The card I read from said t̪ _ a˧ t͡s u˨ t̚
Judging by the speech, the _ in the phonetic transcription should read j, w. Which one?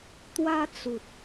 w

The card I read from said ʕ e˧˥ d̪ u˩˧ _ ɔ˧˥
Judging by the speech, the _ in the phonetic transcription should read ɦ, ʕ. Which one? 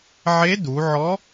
ʕ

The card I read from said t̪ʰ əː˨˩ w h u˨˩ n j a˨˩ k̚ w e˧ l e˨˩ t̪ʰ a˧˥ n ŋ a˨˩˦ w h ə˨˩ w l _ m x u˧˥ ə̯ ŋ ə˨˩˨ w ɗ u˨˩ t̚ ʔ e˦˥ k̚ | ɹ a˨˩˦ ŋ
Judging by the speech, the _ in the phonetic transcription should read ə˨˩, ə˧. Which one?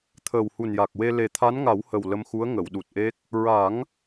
ə˧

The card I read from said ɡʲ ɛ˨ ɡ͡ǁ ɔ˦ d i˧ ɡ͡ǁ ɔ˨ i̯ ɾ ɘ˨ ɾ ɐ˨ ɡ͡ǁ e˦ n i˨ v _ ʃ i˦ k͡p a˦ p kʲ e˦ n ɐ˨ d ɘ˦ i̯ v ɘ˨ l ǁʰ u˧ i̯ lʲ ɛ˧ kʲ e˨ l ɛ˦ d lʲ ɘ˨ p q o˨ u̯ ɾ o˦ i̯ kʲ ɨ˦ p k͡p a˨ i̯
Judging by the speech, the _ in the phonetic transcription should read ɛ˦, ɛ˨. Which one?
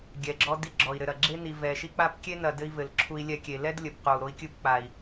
ɛ˨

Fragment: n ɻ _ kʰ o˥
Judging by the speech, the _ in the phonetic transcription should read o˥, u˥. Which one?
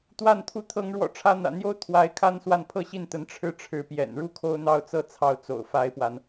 u˥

